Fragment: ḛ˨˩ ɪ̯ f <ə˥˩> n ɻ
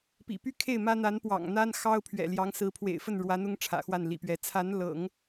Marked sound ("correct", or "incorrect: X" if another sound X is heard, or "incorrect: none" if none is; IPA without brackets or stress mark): correct